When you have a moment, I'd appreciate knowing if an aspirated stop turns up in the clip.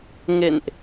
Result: no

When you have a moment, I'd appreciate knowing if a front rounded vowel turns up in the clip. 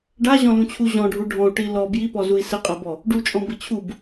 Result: no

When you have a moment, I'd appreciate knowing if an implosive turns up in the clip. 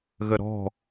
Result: no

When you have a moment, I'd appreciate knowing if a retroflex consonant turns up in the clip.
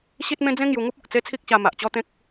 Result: no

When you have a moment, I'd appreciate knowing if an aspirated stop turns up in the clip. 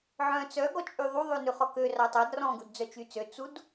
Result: no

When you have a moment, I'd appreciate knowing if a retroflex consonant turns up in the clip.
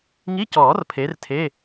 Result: no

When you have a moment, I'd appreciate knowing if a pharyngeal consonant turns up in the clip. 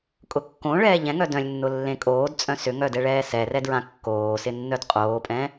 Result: no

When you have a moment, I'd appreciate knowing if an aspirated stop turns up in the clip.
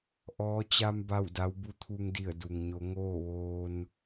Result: yes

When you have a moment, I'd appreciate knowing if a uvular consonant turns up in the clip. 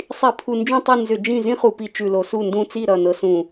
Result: yes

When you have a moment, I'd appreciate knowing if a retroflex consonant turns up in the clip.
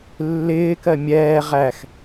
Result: no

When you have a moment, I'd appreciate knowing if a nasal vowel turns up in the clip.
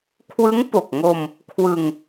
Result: no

